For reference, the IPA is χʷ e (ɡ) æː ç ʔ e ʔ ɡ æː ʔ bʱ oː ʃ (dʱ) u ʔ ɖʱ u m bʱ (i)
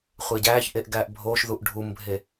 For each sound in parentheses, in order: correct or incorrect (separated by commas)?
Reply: incorrect, incorrect, incorrect